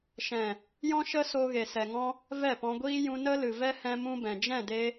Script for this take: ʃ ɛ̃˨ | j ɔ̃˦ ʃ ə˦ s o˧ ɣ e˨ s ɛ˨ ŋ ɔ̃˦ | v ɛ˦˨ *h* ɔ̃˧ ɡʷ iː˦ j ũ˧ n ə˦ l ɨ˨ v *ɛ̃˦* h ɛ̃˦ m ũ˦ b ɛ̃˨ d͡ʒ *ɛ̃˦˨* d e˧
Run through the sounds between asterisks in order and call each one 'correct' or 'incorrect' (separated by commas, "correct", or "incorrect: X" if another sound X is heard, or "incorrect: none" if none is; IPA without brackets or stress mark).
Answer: incorrect: p, incorrect: ɛ˦, correct